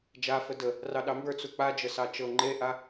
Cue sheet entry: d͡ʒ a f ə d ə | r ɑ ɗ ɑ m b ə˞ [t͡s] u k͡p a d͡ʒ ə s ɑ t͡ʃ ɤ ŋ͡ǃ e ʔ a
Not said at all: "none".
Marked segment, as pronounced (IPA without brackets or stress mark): t͡s